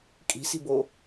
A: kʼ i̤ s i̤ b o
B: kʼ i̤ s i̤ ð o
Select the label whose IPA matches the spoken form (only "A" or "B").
A